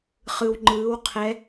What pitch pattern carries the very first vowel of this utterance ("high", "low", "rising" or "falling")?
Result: low